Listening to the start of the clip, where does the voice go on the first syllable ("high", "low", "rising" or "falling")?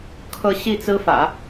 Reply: falling